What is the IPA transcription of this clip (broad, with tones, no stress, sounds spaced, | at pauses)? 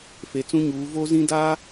f e˨ t͡s ũ˦ ɲ uː˨˦ v o˦ z ĩ˦ d a˦